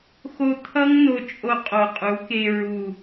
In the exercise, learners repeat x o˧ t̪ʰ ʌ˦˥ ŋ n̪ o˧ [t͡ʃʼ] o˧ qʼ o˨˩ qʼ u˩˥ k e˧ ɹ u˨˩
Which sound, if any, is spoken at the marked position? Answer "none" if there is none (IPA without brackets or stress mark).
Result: t͡ʃʼ